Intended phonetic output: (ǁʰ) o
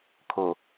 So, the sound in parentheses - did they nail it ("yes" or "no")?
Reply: no